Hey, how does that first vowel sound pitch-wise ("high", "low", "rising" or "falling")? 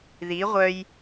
rising